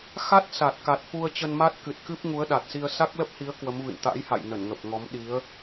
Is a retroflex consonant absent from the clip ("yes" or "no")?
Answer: yes